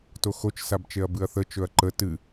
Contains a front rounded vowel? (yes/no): no